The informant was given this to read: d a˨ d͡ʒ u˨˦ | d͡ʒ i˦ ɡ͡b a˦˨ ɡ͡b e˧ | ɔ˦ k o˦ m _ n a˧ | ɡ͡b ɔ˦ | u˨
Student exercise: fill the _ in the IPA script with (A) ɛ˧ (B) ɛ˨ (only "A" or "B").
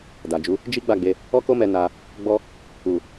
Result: A